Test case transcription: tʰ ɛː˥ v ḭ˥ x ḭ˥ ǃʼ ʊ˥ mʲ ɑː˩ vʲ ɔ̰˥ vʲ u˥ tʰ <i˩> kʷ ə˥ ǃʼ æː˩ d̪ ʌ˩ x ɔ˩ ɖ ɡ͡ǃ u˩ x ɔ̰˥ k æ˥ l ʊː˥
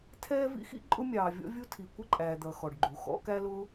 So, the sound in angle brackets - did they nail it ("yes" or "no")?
yes